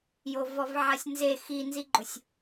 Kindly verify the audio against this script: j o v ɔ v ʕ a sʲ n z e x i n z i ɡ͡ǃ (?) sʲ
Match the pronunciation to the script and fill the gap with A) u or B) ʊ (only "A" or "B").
B